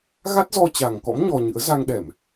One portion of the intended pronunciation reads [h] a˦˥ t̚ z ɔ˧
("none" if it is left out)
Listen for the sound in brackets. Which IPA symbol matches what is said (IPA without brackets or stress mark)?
ɣ